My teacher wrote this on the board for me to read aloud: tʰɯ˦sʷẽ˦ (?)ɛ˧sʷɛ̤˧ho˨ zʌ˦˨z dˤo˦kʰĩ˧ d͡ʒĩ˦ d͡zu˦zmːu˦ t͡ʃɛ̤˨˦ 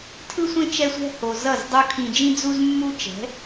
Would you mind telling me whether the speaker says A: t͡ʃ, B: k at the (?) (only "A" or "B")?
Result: A